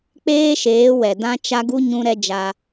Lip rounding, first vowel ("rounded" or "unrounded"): unrounded